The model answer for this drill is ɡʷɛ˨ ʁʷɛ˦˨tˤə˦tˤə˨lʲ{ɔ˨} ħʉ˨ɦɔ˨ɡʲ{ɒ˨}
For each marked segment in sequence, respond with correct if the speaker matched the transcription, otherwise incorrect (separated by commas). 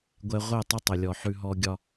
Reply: correct, correct